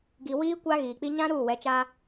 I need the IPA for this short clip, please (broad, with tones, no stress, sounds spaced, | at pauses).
ɡ i˨ w iː˦ kʷ a˦ ɣ iː˨ k͡p i˦ ɲ ã˦ ɾ uː˦˨ w ɛ˨˦ t͡ʃ a˦